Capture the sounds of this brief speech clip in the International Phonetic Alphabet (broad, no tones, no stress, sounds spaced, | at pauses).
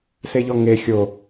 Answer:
s e ʎ ɔ ŋ e xʲ o